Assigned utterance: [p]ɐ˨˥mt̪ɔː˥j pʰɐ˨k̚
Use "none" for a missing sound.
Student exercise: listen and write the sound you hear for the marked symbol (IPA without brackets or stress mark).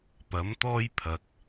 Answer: p